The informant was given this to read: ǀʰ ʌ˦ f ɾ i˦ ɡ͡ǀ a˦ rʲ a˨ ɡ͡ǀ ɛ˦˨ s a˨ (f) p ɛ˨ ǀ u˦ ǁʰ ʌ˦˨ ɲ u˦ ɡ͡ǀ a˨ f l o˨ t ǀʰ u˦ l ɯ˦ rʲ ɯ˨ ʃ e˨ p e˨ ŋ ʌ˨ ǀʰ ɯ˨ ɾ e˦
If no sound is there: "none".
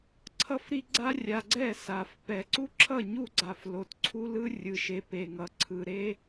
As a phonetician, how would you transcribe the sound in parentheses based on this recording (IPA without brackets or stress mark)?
f